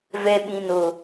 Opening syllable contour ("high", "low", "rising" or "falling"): low